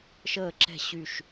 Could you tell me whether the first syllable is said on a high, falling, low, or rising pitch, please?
falling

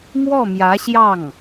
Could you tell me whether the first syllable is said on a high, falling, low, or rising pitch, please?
falling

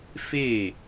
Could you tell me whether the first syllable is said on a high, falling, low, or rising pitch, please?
falling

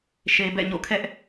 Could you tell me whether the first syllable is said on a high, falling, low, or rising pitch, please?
low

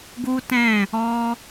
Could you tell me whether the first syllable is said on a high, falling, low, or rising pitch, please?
high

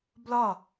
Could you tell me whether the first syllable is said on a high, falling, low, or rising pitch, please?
falling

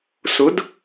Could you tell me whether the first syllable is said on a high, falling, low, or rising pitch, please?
rising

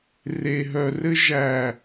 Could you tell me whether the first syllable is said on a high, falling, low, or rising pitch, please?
low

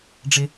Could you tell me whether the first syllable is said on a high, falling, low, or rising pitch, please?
high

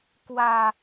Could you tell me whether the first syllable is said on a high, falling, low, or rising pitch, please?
falling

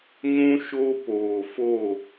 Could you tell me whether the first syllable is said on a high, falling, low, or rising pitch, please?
high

